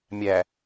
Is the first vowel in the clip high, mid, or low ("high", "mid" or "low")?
low